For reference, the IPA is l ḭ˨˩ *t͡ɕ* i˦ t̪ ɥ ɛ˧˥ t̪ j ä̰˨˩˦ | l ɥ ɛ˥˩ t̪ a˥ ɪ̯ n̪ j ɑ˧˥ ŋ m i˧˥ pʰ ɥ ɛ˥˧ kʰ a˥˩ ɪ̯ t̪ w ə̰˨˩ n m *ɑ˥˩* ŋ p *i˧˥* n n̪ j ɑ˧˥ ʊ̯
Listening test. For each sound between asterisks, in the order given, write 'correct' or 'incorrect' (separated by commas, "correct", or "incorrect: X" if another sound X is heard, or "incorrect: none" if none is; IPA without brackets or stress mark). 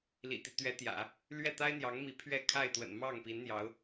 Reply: incorrect: t̪, correct, correct